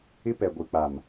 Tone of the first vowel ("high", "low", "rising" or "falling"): high